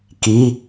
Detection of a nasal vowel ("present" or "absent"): absent